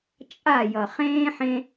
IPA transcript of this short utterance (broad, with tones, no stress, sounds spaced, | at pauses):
t͡ʃʼ a˦˨ j ʌ˨ χ ẽː˦ ħ ẽ˦